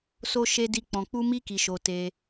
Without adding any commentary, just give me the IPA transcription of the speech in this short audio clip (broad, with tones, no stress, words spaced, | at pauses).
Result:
so˧ ʃe˧di˧ k͡pɔ̃˨k͡pu˧mi˧ki˨ ʃo˧te˧